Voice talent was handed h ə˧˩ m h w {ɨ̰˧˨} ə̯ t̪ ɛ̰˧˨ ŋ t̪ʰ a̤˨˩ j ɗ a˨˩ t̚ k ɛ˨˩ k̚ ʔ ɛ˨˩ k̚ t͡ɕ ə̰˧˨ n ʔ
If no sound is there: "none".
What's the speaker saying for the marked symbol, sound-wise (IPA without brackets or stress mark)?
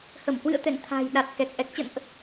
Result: ɨ̰˧˨